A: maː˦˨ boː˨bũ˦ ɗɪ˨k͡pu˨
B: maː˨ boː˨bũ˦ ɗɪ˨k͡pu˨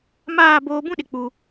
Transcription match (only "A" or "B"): A